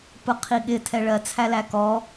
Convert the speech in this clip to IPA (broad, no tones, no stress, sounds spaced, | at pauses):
p ʊ qʰ i ɠ ɪ tʰ ɛ ɭ ɜ t͡sʰ æ l æ k ɔ